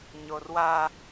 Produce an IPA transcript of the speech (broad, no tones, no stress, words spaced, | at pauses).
ɲorwa